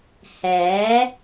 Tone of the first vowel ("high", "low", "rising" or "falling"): rising